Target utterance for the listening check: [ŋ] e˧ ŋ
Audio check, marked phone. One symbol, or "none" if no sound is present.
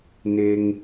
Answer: n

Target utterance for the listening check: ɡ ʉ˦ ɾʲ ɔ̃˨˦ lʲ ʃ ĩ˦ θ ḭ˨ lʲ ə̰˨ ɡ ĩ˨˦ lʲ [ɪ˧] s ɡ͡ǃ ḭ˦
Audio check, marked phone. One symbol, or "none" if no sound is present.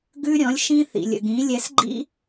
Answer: ɛ˧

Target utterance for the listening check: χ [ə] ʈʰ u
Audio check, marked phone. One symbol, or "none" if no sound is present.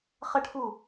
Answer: ə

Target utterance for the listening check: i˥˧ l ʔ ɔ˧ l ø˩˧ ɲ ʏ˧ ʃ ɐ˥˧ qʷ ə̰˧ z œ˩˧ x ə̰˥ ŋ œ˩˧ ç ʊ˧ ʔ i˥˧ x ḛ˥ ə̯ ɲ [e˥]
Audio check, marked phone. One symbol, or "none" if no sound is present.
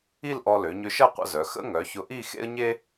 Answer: e˥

